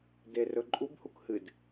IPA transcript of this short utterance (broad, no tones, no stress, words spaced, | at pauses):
derɵ ǃʼubhuk hɨd